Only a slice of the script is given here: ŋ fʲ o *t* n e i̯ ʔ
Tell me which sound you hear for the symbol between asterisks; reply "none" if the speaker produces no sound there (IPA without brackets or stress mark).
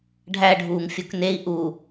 k